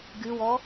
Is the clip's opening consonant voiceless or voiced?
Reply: voiced